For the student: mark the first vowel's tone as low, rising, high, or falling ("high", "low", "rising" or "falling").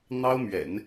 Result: high